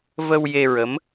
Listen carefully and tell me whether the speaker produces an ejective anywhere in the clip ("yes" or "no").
no